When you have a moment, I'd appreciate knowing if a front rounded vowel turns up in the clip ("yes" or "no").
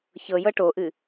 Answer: no